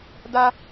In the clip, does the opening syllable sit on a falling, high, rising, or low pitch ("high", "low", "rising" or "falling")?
high